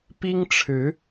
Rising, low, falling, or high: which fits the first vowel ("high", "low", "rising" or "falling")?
high